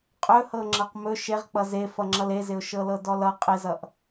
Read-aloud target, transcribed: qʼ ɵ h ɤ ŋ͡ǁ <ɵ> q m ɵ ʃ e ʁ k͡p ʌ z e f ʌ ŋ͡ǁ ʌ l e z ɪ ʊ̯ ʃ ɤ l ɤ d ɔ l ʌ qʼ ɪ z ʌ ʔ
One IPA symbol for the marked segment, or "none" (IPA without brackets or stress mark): ɤ